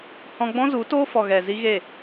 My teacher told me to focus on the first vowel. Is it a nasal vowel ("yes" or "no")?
yes